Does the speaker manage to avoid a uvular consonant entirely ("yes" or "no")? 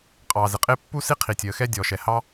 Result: no